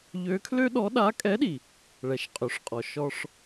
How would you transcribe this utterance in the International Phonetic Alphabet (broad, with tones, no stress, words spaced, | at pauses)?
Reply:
ʎø˧˥kʰlø˥ɗɔ˧˥ ɗa˧˥kʼɛ˧˥ɗi˩ | ɭɛ˩˧ʃ qʼø˩˧ʂqʼɔ˩ ʃɔ˧ʂ